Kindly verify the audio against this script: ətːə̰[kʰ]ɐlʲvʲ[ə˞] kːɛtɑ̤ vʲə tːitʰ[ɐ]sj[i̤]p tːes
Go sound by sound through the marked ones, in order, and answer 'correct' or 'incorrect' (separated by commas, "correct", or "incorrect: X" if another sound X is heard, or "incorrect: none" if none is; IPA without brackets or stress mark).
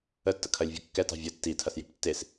correct, incorrect: ɐ, correct, correct